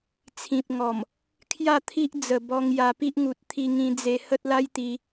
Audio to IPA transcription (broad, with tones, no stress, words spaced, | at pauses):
t͡sʰĩ˨p̚ŋɔ˨˩m | kʰja˥˧t̪ʰi˦ʔ d͡zə˨˩bɔ˧ŋ ja˧pi˦ʔ ŋu˨t̚t̪ʰi˧ŋĩ˧d͡ze˧ hə˦t̚la˦jt̪i˧